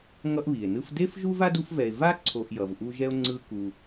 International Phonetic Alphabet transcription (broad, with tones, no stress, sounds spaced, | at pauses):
ŋ ʌ˦ ʔ β i˩ e̯ n ɯ˦ f d e˥ f ʒ u˥ v a˥ d u˦ f v ɛ˨ e̯ v a˦ ǀʰ o˨ ʔ j ʌ˩ v ʔ u˦ ʒ ɛ˥ o̯ ŋ͡ǀ ɯ˦ k u˨